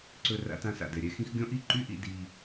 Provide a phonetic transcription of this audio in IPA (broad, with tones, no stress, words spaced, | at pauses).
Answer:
ǀɵ˧ ra̰˧tã˧sa̰˨dɛ˨ ɾʲɛ˦xĩ˦x ɡʲɔ̃˦ʔi˦˨ ǃy˦ʔḭ˧ di˧